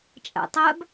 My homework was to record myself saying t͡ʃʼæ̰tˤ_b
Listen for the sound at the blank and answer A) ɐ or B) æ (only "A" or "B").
B